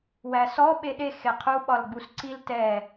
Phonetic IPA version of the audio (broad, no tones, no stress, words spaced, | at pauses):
wæsɔ ɓeɗe xeqʰu ɓɒlɡ͡busǀil tɛ